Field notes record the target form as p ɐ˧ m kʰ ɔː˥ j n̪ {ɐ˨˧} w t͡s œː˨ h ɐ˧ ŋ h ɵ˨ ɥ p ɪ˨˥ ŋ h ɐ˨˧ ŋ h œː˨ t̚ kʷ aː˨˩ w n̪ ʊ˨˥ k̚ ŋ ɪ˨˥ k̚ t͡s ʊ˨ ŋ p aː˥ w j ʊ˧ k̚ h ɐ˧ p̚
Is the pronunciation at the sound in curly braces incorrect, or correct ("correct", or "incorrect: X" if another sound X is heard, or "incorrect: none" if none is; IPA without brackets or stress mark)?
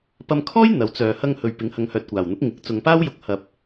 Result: correct